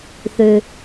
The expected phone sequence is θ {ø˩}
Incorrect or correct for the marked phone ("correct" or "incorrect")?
correct